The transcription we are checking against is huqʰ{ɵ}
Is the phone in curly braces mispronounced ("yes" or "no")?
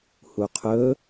no